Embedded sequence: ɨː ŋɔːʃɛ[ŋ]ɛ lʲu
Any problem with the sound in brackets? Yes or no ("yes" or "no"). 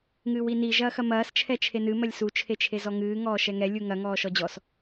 no